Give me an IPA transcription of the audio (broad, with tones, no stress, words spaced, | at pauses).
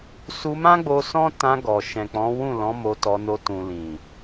su˧mã˦ɡ͡bo˧ sɔ̃˦ tã˧ɡɔ˨ ʃɛ̃˨k͡pɔ̃˨˦wũ˦˨lɔ̃˨˦ mo˧tɔ˧no˧ tũ˨lĩ˨